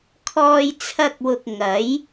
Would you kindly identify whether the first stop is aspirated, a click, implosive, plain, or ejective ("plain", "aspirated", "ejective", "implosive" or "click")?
aspirated